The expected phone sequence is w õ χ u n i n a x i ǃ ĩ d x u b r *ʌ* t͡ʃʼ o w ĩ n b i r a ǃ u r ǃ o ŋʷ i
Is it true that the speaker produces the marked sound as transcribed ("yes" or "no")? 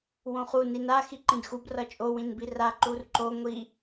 yes